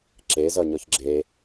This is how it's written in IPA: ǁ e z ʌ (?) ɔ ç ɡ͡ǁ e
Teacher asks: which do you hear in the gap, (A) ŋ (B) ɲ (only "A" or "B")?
B